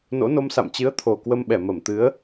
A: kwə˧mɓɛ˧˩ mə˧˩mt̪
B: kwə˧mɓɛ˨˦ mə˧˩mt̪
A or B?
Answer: A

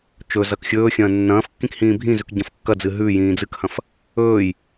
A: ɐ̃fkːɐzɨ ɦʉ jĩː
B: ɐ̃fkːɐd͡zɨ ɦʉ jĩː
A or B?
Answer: B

